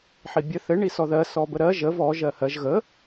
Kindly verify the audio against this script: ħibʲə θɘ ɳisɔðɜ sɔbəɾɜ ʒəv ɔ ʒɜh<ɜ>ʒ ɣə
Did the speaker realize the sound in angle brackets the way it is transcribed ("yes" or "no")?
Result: yes